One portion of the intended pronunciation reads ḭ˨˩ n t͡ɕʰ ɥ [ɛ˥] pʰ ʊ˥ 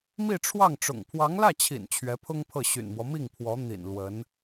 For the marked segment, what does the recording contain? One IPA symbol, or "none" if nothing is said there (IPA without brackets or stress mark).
ɛ˧˥